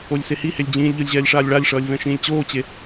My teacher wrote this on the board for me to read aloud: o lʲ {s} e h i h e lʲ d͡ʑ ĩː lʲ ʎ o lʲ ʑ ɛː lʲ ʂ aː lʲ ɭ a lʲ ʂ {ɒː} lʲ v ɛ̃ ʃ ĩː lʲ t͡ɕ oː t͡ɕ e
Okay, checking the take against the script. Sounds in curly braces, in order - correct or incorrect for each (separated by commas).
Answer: correct, incorrect